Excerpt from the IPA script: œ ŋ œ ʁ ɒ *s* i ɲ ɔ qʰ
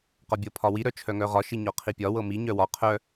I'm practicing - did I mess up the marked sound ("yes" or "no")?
yes